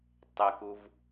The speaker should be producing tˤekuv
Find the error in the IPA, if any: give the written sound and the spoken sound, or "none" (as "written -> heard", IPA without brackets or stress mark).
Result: none